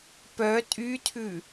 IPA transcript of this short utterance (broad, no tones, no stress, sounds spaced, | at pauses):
p œ tʼ y tʰ ʉ